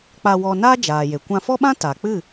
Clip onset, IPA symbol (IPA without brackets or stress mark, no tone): k͡p